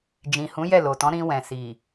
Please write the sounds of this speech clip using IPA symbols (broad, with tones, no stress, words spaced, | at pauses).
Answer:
d͡ʒĩ˨ hũ˨˦jɛ˦˨lo˨tɔ̃˨˦ ɾĩ˧wɛ̃˨ si˨